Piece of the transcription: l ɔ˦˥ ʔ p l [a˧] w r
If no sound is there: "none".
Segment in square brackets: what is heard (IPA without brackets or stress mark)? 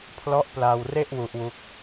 a˧